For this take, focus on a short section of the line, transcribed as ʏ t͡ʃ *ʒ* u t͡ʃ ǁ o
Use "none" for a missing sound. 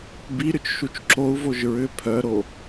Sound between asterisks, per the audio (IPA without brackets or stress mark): ʃ